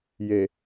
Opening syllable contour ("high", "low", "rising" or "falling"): low